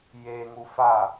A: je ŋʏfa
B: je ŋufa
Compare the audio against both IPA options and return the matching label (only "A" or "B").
B